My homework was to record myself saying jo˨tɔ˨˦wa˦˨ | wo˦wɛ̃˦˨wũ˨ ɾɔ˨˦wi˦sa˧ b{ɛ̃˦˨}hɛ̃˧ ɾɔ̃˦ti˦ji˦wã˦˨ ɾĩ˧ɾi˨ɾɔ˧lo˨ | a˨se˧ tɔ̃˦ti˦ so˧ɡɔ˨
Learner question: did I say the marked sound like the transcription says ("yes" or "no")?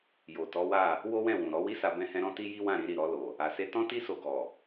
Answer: no